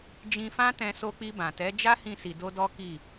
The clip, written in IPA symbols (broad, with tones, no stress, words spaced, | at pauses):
d͡ʒĩ˧fã˦tɛ̃˧ so˧k͡pi˧bã˨tɛ˨˦ d͡ʒa˦hĩ˧si˨ do˧dɔ˦ki˦˨